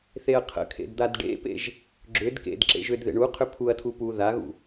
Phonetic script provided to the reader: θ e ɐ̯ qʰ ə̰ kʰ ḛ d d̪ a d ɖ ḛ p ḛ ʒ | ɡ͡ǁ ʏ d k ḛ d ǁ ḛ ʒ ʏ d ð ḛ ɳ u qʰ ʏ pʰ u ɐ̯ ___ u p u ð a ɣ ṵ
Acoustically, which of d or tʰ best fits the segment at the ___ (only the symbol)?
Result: tʰ